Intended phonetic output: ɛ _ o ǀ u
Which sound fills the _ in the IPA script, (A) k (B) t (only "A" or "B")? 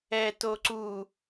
B